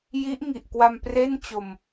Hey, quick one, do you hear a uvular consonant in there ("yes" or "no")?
no